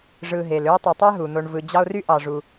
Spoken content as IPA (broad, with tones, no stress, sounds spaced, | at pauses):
ʐ ɯ˨ ɦ e˩ l ø˦ e̯ tˤ e˨ tˤ æ˥ ɦ u˩ n̪ o˨ ɳ v ɯ˨ d͡ʑ ɑ˦ o̯ r y˥ ʔ ɑ˨ ʐ u˨